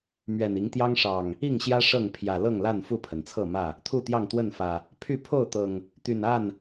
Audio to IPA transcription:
mɥɛ˨˩ni˨˦ŋt̪jɑ˦ŋ ʂɑ˨˩ŋ | i˥˨ŋɕjä˦ ʂɤ˥˨ŋpʰjä˨˩ lɤ˥˨ŋla˥˨n fu˥˨pʰə˩nt͡sʰɤ˥˨mä˥˨ | t̪ʰu˥˨t̪jɑ˥˨ŋt̪wə˥˨nfä˨˩ | pʰy˥˨ pʰo˥˨ʊ̯t̪ɤ˨˩ŋ | t̪y˨˩na˥˨n

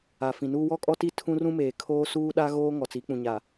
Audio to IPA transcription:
a˨fĩ˨nuː˦ wɔ˦kʼɔ˦ti˦˨ tʰũ˦rũ˦meː˨kʰoː˦ suː˦ɗa˦ ɣoː˦ ŋɔ˨t͡si˨˦k͡pũ˨ɲa˨

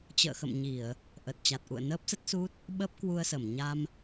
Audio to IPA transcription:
t͡ɕə̰ː˧˨xə̰˧˨mɲi˧˩˨ə̯ | ʔə˨˩t̚t͡ɕa˨˩t̚ ʔṵ˧˨ə̯nəː˦˥p̚ sə˦˥t̚su˦˥t̚ | ɓəː˦˥p̚kwu˧ə̯sə˧˩m ɲa˧m

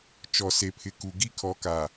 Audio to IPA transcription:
t͡ʃɔ˨ se˨pʰɪ˨ku˨ ɡi˦kʰɔ˨ka˨

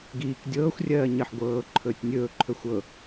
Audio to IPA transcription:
ɡiːk dʲɤːxʷrʲɜː ɲɜħɡʷɤːǃʰɵːtʲ nʲɵːǃʰɵ xʷɤ

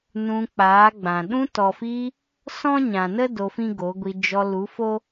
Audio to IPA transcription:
nũ˧ k͡paː˨˦ɡ͡bã˨ ɗũ˧tɔ˨fiː˧ | sɔ̃˦ɲã˨nə˦ do˧fĩ˦ɡo˨˦ɡʷi˧ d͡ʒɔ˧ lu˨˦fo˦

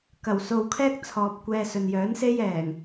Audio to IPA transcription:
kɐ˨˩w so˨wkʰɛː˥k̚ t͡sʰɔː˨p̚kʷɛː˧sɵ˨n jœː˨˥nse˥j ɛː˨˩ŋ

